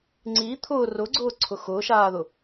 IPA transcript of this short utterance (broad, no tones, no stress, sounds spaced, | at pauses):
ŋ͡ǀ i t̪ʰ ʊ r ʊ ɡ͡ǀ ʊː ǀʰ ʊ x ʊː ʃ aː ð ʊ